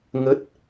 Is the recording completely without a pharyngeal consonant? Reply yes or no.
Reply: yes